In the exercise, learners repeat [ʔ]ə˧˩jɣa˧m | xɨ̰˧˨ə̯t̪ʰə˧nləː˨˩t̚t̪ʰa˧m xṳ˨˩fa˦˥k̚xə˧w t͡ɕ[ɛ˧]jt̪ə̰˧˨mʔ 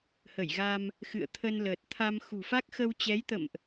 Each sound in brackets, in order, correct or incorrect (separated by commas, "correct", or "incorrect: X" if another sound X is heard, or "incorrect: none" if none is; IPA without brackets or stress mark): incorrect: h, incorrect: ɛ˨˦